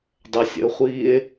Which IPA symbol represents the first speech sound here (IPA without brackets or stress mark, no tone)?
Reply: dˤ